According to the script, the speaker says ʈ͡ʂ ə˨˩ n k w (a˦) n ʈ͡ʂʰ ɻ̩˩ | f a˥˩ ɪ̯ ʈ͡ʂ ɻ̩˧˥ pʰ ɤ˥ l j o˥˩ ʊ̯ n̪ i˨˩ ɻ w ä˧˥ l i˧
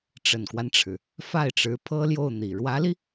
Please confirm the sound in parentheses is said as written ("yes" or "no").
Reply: yes